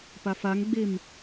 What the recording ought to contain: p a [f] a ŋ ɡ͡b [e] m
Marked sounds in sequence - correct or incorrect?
correct, correct

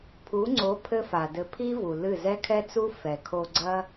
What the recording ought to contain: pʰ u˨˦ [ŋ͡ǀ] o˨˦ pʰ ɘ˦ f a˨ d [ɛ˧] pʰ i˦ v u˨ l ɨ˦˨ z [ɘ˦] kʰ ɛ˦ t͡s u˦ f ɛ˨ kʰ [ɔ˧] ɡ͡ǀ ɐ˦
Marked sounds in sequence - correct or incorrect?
correct, incorrect, incorrect, incorrect

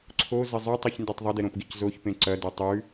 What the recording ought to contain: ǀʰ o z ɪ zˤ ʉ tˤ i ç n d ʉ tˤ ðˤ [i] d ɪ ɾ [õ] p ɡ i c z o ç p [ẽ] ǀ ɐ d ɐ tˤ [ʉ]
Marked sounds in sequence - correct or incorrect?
incorrect, correct, correct, correct

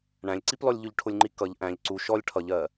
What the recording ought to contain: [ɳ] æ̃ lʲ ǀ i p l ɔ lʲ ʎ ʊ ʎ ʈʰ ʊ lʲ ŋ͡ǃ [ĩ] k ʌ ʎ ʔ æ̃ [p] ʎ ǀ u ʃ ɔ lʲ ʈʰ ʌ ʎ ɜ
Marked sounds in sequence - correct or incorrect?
correct, incorrect, incorrect

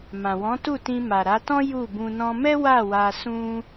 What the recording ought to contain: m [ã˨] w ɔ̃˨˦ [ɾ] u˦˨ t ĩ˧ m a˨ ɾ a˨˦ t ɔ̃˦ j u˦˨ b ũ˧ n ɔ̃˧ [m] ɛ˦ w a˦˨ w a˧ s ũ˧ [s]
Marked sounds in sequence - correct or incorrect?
correct, incorrect, correct, incorrect

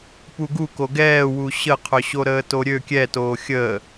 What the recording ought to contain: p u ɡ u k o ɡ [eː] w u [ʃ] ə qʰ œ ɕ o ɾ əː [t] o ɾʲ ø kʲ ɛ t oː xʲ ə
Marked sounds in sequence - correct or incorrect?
incorrect, incorrect, correct

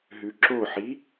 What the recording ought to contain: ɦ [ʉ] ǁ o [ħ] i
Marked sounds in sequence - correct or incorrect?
correct, correct

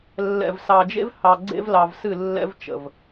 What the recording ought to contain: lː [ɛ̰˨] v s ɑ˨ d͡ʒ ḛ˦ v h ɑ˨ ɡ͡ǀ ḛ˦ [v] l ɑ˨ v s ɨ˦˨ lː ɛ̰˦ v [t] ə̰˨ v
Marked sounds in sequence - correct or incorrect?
correct, correct, incorrect

